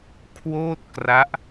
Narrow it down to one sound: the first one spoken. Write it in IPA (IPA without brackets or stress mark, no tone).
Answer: kʰ